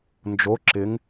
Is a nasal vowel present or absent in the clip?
absent